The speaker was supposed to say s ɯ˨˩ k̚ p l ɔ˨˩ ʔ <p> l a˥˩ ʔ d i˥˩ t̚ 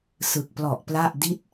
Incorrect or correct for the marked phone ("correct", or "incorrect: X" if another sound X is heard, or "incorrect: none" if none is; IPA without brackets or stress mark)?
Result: correct